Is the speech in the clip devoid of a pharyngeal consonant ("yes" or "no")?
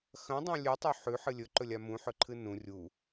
no